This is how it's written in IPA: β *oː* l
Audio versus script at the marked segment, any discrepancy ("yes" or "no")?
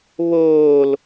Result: no